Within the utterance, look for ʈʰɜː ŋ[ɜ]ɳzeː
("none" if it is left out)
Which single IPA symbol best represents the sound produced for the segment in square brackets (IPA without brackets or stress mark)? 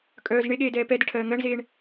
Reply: ɜ